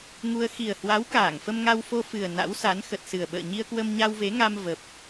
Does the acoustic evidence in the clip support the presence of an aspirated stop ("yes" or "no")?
no